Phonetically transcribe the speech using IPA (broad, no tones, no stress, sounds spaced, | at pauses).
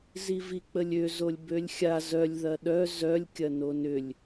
z i v i k͡p ə lʲ ø z o lʲ b ø lʲ xʲ a z œ lʲ ð ɐ ɗ œ z œ lʲ kʲ ɐ n o n ʏ lʲ